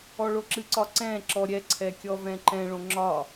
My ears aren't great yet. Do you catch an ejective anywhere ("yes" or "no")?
no